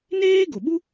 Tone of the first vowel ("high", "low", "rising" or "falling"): high